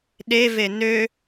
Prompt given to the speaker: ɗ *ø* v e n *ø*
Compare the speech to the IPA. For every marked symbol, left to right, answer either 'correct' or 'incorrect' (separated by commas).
incorrect, correct